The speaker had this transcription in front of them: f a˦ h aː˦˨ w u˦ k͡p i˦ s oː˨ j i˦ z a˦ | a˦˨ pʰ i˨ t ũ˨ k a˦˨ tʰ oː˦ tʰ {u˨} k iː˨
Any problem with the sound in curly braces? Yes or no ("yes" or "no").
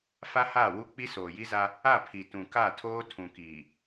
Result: yes